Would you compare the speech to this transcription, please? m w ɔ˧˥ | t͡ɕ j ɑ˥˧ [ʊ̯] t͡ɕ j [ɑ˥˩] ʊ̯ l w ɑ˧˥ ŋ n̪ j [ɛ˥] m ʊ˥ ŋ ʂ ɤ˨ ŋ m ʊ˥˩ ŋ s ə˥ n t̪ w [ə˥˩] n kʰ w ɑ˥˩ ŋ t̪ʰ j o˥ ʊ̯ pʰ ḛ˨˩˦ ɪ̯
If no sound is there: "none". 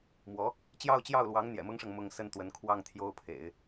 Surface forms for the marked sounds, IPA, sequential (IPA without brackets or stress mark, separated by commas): ʊ̯, ɑ˥˩, ɛ̰˨˩, ə˧˥